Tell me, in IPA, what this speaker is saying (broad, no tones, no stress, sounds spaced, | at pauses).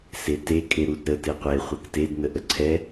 s e t e kʼ e ɾ u d ɾ ə t e qʷ e χʷ ɛ k t e d n ə ʔ ə ǀʰ ɛ